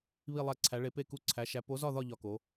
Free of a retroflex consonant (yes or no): no